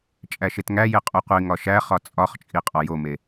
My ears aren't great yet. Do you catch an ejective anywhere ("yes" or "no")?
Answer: yes